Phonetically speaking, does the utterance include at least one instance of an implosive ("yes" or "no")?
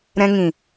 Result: no